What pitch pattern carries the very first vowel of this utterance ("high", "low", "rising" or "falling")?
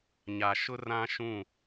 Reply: low